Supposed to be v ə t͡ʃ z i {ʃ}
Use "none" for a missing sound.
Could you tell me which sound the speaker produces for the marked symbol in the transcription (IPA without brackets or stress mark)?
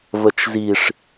ʂ